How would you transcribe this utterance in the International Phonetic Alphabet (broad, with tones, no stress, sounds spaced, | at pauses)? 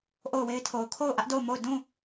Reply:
ʔ o˦˨ ʊ̯ w e˦ ɪ̯ tʰ o˨ ʊ̯ kʰ o˦˨ ʊ̯ ʔ ä˦ ʔ d o˦˨ ʊ̯ m o˦˨ ʊ̯ d ũ˦˨